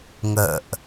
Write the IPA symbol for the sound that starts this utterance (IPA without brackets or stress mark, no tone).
ŋ